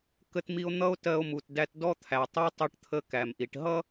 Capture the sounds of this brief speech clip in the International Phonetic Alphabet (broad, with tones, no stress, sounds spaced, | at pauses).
k ə˧ t m i˧ o̯ n̪ ʌ˧ o̯ t ɜ˧ o̯ m u˩ t d æ˧ t d ɔ˥ t̪ʰ æ˩ tˤ ɜ˥ tˤ ʊ˧ ʈ t̪ʰ ə˧ k æ˩ m ʔ i˩ ʈ ɦ ʌ˥